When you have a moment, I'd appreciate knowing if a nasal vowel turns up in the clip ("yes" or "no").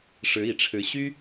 no